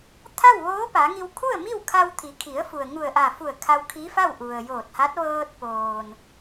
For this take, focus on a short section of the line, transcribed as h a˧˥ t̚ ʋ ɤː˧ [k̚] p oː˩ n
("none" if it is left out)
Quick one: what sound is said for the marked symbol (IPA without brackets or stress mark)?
t̚